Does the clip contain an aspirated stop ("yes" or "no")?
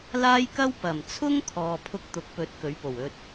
yes